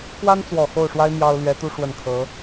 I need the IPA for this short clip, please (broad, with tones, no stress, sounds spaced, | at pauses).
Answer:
k w a˥ n t͡s w ɔ˨˩ x o˥˩ ʊ̯ ʂ w a˥ ɪ̯ m j ɑ˥ ʊ̯ l ɥ ɛ˧˥ t̪ u˥ ʂ w ə˥˩ n kʰ ɤ˧˥